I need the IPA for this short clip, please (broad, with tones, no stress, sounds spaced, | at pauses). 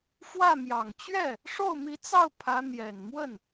f w ä˥˩ m j ɑ˨˩ ŋ t͡ɕ ɥ ɛ˥˩ | ʂ o˥˩ ʊ̯ m i˧˥ t͡s ɑ˥˩ ʊ̯ pʰ ä˧˥ n̪ j ɛ˨˩ n m w ə˥˩ n